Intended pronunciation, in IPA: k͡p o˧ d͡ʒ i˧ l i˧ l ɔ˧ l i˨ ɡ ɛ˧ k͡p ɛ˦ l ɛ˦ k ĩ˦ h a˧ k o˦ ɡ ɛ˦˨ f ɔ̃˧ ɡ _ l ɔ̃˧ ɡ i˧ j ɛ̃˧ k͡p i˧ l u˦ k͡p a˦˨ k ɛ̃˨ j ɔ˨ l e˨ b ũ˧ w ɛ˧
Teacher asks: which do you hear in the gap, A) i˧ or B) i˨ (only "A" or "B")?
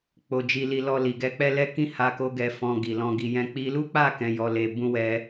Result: B